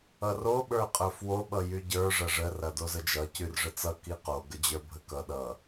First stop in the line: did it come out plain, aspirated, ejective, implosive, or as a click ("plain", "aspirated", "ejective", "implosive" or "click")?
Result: implosive